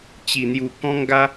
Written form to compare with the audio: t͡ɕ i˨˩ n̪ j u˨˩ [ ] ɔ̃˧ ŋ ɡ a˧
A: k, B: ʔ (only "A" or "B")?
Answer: A